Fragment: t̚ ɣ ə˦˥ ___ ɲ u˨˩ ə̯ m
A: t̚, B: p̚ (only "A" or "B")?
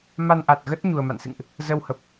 A